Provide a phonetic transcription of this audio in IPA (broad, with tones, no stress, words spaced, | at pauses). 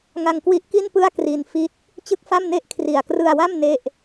ŋa˧ŋkwi˦˥ʔki˥˩npɯ˥˩a̯ kri˧n fi˦˥t̚ | t͡ɕɯ˥˩k̚fa˥˩mne˥˩ʔ kʰri˨˩a̯krɯ˧a̯wa˥˩m ne˥˩ʔ